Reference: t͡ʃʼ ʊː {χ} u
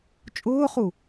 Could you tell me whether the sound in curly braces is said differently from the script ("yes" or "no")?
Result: no